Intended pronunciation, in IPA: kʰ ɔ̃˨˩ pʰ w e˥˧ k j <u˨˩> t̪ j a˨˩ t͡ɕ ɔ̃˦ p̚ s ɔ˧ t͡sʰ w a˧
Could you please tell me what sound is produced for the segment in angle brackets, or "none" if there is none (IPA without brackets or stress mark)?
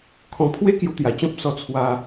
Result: u˧